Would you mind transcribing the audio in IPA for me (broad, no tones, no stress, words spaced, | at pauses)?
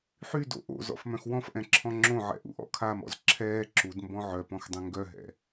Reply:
ħydo̰ ʔo̰ zɔ̰fmœ̃xwɔ̃fʔɛ̃ ǁʰɔ̃ŋ͡ǁõʕɛ̰ ʔṵʔɔ̰kʰamɔ̰z ǁʰɛː ǁudmbɔ̃ ʕœpɔ̃x dˤɛ̃ŋɡœɦɛ̰